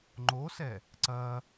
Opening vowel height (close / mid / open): mid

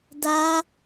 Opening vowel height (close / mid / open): open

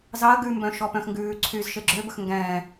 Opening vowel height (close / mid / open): open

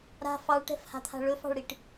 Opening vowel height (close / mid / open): open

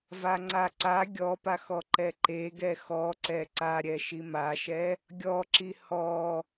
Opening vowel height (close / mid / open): open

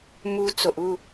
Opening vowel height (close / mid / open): close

